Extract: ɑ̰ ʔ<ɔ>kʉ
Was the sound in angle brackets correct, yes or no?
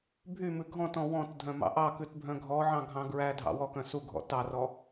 no